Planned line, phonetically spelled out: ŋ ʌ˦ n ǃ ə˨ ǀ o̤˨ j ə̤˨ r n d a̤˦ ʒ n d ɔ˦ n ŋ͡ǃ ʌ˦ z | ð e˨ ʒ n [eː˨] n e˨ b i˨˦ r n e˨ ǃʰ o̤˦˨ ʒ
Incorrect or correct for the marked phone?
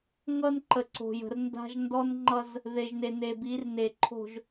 incorrect: e˨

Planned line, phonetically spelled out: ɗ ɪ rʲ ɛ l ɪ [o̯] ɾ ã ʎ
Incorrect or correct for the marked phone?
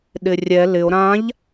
correct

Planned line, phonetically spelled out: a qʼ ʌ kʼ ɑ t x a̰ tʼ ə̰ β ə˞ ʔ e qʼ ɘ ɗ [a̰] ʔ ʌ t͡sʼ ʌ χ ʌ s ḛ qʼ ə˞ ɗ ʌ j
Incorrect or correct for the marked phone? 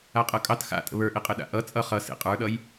correct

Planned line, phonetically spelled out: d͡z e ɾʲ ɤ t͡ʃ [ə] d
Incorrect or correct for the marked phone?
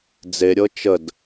correct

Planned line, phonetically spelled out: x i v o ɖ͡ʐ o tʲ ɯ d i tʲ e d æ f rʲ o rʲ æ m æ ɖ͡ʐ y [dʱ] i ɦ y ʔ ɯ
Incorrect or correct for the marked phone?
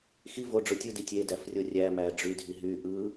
correct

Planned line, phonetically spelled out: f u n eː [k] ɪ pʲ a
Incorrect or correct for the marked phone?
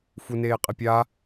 incorrect: qʼ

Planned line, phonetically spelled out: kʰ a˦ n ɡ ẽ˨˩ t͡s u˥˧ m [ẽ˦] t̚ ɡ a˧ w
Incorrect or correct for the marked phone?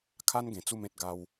correct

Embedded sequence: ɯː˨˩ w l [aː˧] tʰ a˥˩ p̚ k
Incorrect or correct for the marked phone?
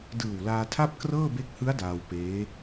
correct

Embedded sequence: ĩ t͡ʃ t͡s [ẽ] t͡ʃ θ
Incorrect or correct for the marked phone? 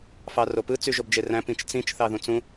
incorrect: ĩ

